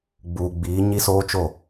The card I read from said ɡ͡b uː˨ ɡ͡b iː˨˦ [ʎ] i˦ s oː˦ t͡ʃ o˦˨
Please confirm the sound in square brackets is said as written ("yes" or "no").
no